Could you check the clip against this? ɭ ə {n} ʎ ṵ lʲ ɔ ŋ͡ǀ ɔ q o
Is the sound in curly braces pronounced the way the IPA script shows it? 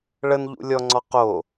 yes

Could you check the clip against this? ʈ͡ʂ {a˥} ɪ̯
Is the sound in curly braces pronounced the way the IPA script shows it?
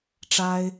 yes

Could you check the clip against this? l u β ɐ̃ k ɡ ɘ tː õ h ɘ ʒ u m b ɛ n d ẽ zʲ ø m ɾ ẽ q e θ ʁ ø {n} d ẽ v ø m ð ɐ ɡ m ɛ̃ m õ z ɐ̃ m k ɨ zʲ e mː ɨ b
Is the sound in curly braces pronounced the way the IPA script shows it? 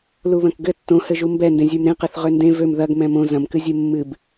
yes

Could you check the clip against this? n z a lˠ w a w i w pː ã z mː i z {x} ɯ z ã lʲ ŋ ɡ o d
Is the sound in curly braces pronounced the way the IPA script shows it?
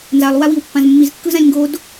no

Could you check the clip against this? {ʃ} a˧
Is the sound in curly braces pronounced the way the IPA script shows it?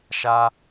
yes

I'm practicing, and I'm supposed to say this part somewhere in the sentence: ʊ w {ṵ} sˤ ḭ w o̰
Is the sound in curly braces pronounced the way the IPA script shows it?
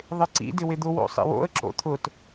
no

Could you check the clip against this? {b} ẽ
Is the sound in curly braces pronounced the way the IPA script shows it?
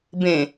yes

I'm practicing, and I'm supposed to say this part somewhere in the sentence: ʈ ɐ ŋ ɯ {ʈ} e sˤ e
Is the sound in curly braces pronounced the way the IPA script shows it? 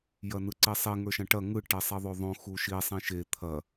yes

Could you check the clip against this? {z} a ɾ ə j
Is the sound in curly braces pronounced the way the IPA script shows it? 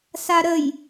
no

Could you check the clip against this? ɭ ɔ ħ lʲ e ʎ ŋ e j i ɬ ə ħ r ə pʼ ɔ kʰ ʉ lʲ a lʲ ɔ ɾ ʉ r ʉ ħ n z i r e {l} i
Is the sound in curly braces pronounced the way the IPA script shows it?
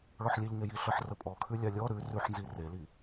yes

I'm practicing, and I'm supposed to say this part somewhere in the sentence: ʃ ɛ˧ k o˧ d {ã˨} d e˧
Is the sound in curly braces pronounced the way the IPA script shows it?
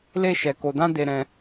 no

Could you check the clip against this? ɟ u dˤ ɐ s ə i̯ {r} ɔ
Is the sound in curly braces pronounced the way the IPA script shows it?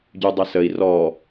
yes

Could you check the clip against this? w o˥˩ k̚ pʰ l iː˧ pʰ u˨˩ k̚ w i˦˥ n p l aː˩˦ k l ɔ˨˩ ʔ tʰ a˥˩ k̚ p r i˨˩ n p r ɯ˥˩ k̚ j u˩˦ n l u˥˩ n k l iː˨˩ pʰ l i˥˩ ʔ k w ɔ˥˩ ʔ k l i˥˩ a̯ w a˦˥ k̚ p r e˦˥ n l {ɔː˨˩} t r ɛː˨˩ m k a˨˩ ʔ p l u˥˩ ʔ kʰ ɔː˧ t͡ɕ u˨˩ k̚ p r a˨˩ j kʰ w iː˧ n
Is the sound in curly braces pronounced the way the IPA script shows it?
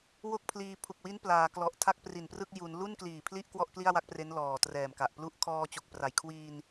yes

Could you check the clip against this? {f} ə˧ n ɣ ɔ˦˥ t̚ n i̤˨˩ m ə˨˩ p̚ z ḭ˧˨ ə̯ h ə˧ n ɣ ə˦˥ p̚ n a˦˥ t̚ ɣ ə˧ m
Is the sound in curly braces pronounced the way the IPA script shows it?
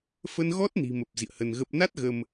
yes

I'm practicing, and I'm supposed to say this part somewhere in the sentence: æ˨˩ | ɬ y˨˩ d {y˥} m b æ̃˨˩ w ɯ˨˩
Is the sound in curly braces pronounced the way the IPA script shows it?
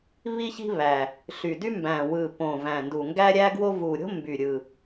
yes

